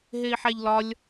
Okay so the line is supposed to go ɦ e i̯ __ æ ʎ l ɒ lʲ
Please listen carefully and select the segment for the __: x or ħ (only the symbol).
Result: ħ